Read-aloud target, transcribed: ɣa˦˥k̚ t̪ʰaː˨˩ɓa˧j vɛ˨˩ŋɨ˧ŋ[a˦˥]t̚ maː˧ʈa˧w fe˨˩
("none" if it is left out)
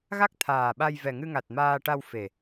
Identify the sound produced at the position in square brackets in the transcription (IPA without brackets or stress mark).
a˨˩